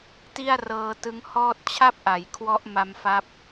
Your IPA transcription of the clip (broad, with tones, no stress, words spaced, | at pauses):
ti˥˩a̯rɤː˧tɯ˦˥ŋhɔː˥˩t̚ t͡ɕʰa˥˩p̚ʔa˩˦j kʰwɔ˦˥ʔ ma˧mfa˦˥p̚